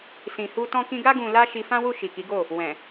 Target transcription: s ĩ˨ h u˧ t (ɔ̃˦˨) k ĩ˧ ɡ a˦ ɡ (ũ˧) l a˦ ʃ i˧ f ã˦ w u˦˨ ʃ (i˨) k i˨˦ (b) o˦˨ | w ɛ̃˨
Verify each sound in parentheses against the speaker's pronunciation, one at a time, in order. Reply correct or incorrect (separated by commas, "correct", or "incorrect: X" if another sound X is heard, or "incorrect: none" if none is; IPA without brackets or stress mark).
incorrect: ɔ̃˧, correct, correct, incorrect: ɡ